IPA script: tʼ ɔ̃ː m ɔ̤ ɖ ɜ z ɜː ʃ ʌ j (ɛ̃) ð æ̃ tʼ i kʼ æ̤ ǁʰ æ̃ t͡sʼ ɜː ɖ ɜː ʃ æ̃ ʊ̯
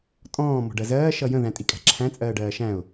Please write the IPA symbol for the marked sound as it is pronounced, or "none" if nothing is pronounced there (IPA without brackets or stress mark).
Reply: ə̃